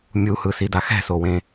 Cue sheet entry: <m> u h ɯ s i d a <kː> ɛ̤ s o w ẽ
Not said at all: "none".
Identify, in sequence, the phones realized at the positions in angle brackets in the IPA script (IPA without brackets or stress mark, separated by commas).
mʲ, x